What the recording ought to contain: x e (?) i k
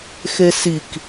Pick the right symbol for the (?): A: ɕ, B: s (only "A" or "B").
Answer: B